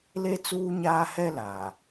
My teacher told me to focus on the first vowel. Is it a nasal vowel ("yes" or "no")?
no